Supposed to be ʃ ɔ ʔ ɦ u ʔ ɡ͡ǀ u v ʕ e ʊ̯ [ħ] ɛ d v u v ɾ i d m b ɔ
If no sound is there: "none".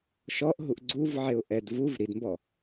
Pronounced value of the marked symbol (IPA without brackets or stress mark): ʔ